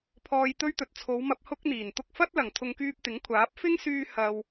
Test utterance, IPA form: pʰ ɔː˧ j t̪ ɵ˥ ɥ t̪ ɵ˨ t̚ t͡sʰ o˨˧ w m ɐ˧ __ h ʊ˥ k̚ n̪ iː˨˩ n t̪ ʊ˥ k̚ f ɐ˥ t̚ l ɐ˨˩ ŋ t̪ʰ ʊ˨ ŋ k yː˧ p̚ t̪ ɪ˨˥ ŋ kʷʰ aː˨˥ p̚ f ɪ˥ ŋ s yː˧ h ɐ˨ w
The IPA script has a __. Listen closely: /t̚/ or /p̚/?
p̚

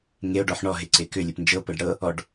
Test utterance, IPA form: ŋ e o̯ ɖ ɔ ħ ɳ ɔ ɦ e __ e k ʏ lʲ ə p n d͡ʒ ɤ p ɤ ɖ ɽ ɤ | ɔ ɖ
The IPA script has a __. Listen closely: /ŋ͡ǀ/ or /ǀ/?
ǀ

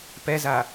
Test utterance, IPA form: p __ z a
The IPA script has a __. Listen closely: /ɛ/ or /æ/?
ɛ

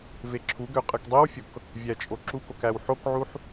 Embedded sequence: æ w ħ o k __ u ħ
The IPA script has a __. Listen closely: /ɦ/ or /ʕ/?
ʕ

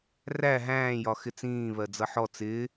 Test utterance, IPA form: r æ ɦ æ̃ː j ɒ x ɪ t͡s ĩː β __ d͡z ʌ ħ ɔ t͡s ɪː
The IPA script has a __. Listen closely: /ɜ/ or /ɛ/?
ɜ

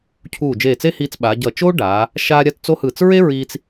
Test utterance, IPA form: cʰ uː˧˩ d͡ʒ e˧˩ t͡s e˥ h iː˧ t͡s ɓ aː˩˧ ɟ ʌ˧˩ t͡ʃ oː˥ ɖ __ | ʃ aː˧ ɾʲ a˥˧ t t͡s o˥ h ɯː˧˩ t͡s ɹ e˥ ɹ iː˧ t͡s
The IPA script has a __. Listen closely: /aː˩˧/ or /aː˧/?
aː˩˧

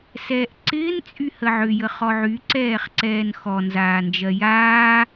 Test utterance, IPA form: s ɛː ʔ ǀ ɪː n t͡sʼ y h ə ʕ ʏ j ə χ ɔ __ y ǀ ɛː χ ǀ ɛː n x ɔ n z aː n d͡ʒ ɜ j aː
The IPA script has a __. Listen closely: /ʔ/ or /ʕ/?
ʕ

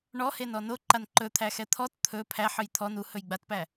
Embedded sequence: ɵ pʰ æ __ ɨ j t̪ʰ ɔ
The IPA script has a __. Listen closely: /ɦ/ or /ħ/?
ħ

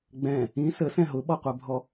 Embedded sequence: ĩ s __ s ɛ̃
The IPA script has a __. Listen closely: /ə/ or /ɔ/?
ə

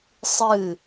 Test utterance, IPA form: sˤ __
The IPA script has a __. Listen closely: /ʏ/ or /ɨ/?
ɨ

